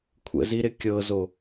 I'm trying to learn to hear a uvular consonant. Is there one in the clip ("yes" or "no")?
no